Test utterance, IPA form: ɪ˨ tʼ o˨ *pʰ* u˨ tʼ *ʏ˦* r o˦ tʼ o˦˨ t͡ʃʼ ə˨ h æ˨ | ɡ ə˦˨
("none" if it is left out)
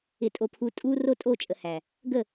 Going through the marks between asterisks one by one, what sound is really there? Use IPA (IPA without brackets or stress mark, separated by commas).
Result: pʰ, u˦